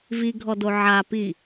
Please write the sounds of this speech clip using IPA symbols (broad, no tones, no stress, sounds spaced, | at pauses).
v i ɡʱ ɔ d o ʕ a p i